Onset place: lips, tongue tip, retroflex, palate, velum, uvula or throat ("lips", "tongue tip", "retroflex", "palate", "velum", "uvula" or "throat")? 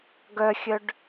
velum